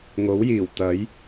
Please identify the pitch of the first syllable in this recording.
rising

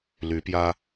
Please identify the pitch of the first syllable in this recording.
rising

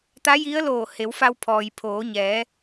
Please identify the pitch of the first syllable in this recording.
rising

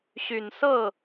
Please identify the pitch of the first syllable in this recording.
low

